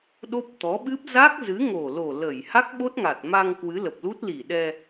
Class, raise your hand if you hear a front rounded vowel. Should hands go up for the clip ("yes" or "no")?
no